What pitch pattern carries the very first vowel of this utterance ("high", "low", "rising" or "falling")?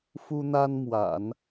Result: high